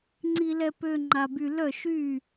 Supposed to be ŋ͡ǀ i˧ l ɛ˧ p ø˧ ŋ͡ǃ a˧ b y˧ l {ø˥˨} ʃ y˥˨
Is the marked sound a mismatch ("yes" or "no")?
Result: yes